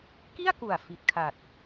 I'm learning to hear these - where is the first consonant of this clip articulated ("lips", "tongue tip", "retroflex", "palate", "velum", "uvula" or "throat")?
velum